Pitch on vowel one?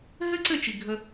high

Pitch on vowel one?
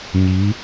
rising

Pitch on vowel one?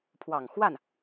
low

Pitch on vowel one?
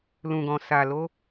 low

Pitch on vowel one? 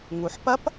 low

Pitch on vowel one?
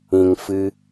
low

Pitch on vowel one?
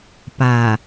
low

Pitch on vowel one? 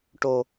low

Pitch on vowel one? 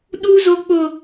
high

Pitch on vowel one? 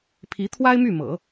rising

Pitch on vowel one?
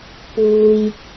low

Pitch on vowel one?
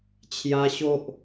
high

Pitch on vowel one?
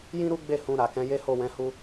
high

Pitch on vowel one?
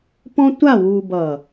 high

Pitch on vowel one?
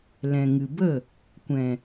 low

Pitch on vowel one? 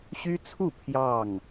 high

